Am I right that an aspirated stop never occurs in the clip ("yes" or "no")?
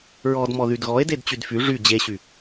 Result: yes